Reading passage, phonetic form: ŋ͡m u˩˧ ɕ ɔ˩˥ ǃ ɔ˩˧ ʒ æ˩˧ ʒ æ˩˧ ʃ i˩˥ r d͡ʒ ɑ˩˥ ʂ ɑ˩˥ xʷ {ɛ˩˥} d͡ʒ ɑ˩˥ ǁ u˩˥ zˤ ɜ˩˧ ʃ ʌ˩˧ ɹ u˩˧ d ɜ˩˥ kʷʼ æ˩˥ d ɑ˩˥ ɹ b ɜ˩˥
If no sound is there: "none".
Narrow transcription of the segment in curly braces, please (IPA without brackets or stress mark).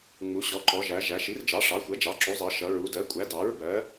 ɛ˩˥